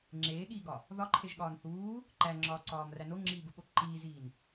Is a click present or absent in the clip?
present